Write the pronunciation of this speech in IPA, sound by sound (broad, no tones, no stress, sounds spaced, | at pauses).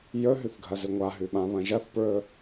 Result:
j ɵ ɦ ʉ θ ɡʱ ɐ z ɨ ŋʷ a ɦ ʉ ɓ ã β ɐ̃ ʒ ɐ θ p ɹ ɵ